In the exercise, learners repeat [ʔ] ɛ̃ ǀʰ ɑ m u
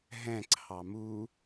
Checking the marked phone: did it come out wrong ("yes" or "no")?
yes